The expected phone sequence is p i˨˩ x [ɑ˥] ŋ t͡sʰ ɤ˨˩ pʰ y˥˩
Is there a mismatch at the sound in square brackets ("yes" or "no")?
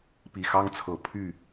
no